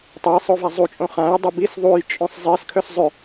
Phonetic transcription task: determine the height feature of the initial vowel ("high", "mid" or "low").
mid